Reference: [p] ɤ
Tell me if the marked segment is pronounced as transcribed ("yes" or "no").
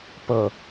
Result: yes